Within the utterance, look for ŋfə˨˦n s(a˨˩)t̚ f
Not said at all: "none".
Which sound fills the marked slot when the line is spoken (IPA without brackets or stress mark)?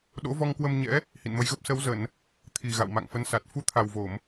a˨˩